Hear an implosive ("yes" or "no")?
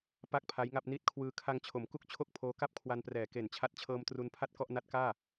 no